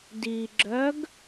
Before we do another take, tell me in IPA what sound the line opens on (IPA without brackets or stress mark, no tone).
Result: d